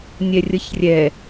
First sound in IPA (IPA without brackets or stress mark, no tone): nʲ